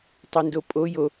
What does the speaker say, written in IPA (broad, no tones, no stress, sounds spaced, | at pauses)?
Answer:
tˤ e n d o pʼ o j o